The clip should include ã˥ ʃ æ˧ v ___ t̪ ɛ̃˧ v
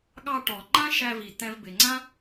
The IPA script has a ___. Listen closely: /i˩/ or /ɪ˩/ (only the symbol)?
i˩